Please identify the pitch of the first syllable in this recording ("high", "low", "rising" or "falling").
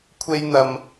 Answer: high